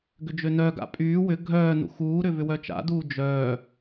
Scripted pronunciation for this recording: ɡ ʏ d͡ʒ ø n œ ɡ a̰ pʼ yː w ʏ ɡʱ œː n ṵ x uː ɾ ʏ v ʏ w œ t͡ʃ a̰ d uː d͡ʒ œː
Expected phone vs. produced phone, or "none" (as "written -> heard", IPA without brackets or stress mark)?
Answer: none